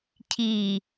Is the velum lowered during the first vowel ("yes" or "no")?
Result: no